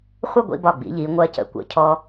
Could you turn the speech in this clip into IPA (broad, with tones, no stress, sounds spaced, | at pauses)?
χʷ ə˥˧ ɡʷ ḭ˧ b ɒ˧˩ ɡ͡b ḭ˩˧ ʎ i˩˧ ŋʷ ɜ˧ c ə̰˧˩ kʷ ə̰˧ cʰ ɔ˧